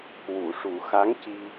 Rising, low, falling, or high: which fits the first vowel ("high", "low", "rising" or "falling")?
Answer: low